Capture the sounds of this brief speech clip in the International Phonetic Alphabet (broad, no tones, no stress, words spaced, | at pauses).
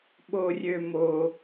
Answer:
ɓorʲømo